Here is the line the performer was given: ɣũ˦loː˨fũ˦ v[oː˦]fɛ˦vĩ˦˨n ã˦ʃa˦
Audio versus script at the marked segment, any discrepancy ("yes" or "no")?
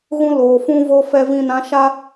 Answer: no